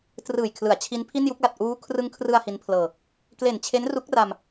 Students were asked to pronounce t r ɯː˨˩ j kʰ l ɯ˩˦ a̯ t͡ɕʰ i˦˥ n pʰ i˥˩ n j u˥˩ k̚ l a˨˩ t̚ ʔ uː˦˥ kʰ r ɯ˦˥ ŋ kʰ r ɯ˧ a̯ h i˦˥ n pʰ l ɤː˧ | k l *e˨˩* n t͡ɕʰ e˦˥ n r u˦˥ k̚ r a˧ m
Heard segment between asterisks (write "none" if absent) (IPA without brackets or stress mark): e˨˩